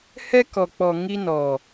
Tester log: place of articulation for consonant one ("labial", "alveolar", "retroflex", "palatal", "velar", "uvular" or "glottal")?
glottal